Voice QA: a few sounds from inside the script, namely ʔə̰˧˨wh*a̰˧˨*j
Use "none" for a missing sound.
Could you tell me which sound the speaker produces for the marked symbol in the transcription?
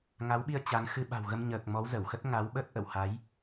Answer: a˨˦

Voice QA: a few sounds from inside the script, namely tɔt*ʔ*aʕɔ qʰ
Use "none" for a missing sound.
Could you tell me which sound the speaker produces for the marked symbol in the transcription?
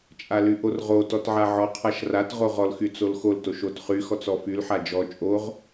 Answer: ʕ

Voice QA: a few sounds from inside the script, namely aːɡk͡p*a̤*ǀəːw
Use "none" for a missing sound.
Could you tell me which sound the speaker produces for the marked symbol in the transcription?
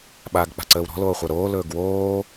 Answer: a̤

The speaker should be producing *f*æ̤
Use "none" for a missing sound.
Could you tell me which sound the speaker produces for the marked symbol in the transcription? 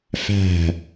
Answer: f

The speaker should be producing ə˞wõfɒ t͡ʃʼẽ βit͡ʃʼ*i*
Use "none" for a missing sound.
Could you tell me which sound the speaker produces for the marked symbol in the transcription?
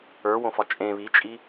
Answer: i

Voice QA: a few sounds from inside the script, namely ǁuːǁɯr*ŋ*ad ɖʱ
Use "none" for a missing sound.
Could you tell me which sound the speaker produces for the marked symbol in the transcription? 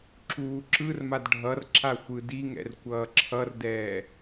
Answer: m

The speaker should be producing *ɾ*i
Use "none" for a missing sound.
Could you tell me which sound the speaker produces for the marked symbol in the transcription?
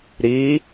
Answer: ɾ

